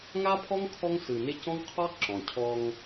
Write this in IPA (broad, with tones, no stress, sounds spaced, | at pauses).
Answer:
ŋ a˦ pʰ ɔ˦ ŋ kʰ ɔ˦ ŋ s ɯ˨ n ɪ˦ c ɔ̃˦ ŋ qʰ ɔ˦ ǁ ɔ̃˨ cʰ ɔ˦ ŋ